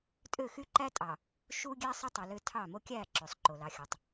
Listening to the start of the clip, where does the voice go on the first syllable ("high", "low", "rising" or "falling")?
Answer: falling